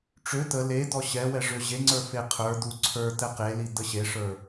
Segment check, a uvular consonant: present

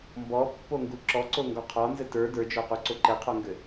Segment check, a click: present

